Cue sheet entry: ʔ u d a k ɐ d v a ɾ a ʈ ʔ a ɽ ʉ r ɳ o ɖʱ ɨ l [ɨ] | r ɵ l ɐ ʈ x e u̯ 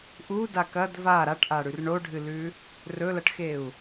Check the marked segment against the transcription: incorrect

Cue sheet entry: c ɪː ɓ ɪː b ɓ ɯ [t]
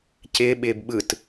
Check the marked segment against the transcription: correct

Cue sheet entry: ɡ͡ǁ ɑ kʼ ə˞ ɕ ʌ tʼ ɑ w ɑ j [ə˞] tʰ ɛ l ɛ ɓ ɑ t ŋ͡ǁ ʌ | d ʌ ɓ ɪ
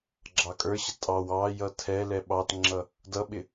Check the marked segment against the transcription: incorrect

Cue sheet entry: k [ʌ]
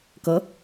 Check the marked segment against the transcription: correct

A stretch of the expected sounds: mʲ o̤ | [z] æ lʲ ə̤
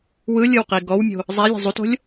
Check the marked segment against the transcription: incorrect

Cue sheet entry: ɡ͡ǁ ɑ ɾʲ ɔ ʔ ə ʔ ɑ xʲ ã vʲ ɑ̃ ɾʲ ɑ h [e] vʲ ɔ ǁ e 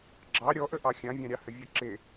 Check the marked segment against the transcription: incorrect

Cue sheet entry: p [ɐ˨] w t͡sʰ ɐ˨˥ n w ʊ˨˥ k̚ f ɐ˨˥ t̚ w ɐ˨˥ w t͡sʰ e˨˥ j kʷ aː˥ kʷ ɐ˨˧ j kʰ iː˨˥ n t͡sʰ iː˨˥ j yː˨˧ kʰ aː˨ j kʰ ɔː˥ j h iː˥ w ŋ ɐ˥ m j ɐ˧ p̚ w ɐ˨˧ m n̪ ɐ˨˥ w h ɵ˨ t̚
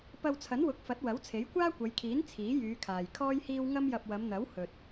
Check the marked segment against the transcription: incorrect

